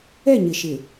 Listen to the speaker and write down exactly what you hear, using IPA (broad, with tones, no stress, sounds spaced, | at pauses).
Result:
ɛ˦˨ ɲ ɪ˨ ʃ ɪ˨